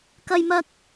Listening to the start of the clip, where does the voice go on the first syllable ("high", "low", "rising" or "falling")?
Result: high